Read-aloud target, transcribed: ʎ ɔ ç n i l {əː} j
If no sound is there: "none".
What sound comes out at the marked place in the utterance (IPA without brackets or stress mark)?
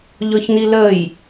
əː